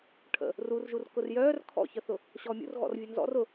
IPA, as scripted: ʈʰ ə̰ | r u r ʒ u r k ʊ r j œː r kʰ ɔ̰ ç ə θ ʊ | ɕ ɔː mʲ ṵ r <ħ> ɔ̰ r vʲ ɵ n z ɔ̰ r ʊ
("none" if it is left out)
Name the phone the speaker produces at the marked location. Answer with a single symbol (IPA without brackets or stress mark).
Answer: ɣ